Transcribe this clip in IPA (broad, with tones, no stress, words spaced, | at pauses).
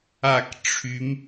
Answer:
a˧˩k ʈ͡ʂʰy˩˧m